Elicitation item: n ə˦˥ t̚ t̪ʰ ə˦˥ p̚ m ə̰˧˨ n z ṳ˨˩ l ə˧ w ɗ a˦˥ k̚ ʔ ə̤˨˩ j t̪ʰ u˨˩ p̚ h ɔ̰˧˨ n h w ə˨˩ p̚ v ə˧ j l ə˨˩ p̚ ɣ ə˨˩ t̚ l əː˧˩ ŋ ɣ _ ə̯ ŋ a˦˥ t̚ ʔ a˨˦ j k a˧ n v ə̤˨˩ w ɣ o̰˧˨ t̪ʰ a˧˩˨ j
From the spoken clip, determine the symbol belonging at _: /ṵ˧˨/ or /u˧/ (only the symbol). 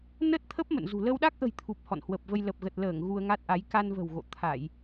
u˧